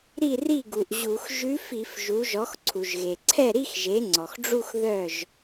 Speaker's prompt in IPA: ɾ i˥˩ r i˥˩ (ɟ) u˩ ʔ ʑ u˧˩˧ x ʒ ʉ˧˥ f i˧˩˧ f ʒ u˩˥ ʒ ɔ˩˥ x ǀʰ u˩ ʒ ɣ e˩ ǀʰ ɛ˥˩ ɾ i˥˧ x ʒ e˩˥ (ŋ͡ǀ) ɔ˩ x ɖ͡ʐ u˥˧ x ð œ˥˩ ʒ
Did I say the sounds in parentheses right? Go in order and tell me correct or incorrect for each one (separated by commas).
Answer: incorrect, correct